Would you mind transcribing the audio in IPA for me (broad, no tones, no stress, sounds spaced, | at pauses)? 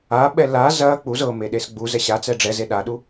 a ɓ ɛ l a z ɐ k͡p u z ɤ m e ɗ e s ɡ͡b u z ɛ ɕ a t͡s ɛ ɖ͡ʐ ɛ z e ɗ a ɗ u